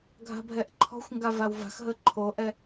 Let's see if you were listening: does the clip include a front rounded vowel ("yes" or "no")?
no